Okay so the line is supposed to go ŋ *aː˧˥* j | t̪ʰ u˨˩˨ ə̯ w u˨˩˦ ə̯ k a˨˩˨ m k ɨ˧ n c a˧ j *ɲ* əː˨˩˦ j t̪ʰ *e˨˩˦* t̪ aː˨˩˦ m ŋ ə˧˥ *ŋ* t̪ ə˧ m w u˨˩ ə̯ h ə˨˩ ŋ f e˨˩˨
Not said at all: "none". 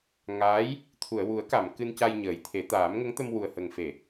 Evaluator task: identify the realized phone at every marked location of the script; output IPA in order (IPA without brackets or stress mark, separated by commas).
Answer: aː˧˥, ɲ, e˨˩˦, ŋ